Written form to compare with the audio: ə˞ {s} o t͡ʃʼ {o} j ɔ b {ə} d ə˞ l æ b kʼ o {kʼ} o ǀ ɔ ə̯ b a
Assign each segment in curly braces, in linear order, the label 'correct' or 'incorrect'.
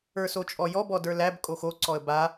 correct, incorrect: ɔ, incorrect: ɔ, incorrect: x

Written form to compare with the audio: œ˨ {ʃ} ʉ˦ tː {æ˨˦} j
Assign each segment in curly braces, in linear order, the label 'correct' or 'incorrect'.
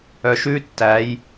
correct, correct

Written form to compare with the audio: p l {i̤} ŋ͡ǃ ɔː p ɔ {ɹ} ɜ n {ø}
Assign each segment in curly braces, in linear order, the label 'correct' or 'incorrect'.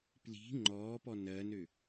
correct, incorrect: n, correct

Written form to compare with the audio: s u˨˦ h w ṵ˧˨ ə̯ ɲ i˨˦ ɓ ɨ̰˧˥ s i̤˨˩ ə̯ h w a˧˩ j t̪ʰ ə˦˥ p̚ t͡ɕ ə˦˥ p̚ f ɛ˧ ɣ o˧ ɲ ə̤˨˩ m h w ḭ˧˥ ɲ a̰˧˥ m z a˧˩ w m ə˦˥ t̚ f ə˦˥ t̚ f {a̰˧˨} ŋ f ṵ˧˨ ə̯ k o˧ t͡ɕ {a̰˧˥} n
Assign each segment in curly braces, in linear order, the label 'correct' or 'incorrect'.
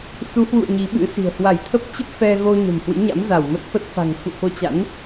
incorrect: a̤˨˩, correct

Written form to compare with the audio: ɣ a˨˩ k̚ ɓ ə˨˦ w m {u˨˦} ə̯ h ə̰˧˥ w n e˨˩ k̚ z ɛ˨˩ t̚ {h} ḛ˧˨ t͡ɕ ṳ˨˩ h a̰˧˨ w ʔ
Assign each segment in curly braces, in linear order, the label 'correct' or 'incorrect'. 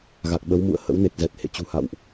incorrect: ṵ˧˨, correct

